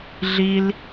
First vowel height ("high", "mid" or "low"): high